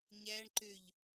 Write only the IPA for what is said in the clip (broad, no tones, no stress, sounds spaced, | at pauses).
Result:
ɲ æ ɳ ǃ ø ʎ